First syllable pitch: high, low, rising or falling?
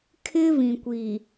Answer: high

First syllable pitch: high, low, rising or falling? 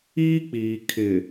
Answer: high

